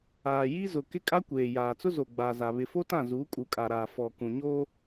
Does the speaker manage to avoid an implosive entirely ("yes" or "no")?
yes